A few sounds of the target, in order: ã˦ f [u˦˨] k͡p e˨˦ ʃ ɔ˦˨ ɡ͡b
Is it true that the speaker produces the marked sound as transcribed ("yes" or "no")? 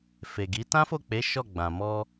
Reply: no